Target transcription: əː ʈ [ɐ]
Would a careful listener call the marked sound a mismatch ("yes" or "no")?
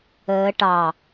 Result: yes